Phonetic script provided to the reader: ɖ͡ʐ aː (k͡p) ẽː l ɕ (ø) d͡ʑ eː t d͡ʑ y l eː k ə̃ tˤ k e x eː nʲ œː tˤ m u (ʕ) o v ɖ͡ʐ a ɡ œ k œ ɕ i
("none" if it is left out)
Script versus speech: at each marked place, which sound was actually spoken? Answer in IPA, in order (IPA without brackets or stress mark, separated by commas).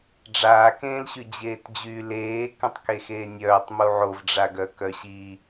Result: k, y, ʕ